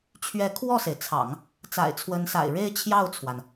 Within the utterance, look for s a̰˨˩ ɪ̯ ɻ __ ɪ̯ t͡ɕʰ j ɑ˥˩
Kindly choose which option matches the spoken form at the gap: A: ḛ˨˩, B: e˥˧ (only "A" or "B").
B